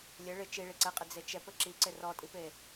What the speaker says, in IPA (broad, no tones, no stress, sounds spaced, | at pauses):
lʲ ɘ ɭ ɪ t͡ʃ i ɭ i ǀ ɛ qʼ ɪ d͡z e t͡ʃ ɛ p ɘ ǁ i ǀ ɪ r ɔ tʼ i p e